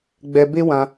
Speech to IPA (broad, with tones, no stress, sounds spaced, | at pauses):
ɡ͡b ɛ˧ b e˦ w ã˧